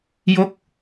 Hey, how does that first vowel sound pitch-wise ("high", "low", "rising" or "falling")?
falling